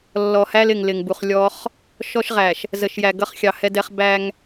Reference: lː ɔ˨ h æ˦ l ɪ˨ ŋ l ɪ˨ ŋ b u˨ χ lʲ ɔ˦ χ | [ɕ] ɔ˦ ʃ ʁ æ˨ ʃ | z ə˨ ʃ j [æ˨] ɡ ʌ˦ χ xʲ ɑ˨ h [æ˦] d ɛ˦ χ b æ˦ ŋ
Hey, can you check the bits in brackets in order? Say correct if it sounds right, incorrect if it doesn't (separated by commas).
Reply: incorrect, correct, incorrect